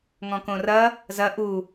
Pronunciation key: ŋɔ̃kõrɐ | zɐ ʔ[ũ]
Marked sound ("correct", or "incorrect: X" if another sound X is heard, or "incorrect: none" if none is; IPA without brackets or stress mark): incorrect: u